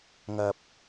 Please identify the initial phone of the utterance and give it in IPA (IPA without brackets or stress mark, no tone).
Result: ŋ